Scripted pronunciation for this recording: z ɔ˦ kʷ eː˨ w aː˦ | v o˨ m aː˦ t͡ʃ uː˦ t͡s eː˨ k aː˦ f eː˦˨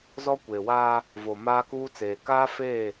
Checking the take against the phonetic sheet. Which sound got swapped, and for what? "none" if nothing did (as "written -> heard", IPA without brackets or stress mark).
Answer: t͡ʃ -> k